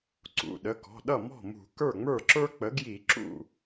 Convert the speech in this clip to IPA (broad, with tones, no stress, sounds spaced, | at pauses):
ǀ ṵ˩˧˩ ɗ ə˩˧˩ k ɔ̤˩˧˩ ɗ ʌ˥˩ m ɔ̤˥˩ m ṳ˧˩˧ k ə˞˥˩ ŋ͡m ə˞˥˩ ǁ ə˞˥ k͡p ə˩˥ ɡ j i˧˩˧ ǁ ṵ˥˩